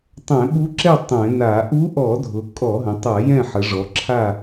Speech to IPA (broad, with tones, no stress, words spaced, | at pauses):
tˤɛ̃˧˩˧ɓu˧˥ǁɛ˥˨ tˤɛ̃˧˩˧na˧˩˧ ʔu˧˥ʔɔ˧˩˧dʱʊ˩˧ kʼɔ˧˩˧ɦə̃˩˧tˤa˧˩˧ jɛ̃˥˨ħə˩˧ʐɔ˩˧ǁʰa˥˨